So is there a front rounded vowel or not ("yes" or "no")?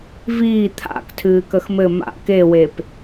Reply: no